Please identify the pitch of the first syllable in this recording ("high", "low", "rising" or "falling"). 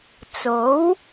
rising